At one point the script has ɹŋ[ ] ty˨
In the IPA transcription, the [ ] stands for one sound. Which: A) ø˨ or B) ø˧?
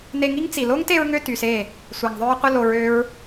B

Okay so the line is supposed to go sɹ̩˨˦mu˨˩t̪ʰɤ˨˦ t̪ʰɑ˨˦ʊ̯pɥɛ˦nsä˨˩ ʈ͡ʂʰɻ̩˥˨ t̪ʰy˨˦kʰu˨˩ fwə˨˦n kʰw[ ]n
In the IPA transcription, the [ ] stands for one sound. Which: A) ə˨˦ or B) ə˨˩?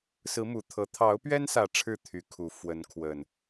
B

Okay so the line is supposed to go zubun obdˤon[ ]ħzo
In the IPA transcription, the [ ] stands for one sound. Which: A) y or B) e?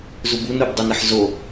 B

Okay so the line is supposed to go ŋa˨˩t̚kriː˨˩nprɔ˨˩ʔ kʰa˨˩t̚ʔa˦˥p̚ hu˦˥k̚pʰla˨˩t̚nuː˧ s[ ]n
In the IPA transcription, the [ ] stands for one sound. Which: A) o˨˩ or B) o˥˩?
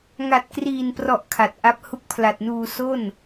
B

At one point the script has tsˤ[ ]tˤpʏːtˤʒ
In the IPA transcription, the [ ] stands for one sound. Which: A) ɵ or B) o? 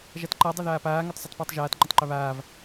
A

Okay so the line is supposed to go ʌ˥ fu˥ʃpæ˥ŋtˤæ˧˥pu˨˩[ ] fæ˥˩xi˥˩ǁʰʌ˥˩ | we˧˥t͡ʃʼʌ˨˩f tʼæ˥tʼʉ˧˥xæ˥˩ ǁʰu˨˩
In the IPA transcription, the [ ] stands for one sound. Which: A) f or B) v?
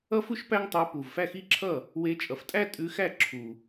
B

